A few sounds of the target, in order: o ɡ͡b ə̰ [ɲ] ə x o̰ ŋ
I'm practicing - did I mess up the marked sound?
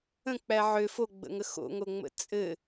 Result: yes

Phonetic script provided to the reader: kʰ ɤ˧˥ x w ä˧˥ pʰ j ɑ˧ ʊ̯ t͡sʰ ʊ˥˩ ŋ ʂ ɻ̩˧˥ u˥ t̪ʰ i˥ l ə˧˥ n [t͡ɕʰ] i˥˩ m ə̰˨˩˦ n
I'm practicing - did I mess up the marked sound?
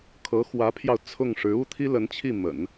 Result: no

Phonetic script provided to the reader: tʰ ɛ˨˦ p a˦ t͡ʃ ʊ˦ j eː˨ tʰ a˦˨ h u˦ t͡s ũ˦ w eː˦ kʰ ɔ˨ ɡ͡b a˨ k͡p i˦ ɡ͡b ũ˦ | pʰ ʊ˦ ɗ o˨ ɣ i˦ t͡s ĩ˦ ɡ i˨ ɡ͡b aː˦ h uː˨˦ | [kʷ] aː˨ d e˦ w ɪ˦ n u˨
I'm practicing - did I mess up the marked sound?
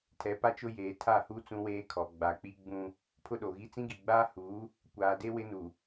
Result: no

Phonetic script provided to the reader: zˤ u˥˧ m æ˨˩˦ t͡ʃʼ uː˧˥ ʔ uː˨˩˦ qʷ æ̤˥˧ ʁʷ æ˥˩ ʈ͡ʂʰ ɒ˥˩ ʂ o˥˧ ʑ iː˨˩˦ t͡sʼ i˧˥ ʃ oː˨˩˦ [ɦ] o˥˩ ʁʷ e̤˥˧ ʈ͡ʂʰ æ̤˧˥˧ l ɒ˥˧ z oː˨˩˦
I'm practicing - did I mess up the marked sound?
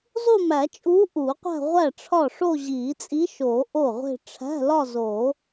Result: yes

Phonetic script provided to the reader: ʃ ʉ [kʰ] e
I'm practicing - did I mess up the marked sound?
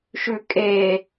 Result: yes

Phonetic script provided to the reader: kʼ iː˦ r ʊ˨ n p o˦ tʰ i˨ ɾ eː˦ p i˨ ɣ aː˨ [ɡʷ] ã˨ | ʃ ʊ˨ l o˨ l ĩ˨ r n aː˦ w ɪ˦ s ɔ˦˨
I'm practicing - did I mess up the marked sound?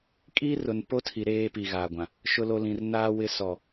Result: no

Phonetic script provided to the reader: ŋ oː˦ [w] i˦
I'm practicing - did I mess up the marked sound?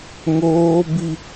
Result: yes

